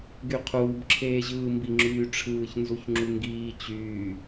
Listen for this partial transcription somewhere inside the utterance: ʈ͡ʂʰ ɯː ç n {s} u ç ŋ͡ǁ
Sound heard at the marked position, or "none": z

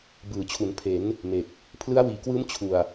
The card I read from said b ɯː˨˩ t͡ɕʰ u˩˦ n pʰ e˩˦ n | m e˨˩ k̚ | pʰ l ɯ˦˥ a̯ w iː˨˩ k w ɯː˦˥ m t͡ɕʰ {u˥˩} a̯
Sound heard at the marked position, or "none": u˨˩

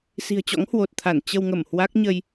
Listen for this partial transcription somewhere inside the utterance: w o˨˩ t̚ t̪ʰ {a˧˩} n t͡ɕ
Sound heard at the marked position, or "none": a˧˩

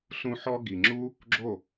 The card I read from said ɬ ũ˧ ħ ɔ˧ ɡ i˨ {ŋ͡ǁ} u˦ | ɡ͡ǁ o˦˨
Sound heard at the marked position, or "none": ŋ͡ǁ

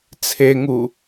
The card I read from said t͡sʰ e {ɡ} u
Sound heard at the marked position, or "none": ŋ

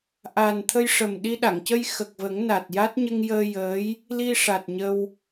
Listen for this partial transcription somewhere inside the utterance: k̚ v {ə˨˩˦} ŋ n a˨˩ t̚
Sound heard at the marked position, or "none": ə˨˩˦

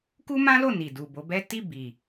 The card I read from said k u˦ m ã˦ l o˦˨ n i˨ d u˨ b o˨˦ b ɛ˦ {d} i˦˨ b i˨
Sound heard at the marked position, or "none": t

